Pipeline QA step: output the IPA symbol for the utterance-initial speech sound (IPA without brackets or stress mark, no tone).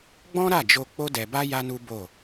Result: ɡ͡b